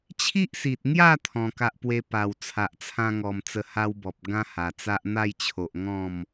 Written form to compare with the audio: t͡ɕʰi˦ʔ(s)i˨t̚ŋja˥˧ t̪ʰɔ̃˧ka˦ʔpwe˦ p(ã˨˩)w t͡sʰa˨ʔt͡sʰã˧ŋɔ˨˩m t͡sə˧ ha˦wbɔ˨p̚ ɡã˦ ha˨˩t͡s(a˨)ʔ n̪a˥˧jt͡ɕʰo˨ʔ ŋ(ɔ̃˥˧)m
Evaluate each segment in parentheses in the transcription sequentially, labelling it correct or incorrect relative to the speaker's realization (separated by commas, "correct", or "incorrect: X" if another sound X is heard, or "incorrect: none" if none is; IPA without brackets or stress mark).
correct, incorrect: a˨˩, incorrect: a˦, correct